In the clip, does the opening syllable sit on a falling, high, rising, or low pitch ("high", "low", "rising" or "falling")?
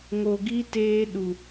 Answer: low